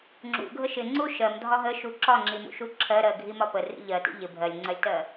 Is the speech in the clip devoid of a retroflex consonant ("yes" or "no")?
yes